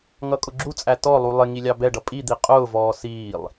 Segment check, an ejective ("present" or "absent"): present